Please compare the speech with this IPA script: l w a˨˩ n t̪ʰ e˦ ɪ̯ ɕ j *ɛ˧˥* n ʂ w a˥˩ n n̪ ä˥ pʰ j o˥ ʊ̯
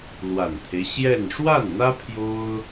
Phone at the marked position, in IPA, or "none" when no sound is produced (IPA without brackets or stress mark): ɛ˥˧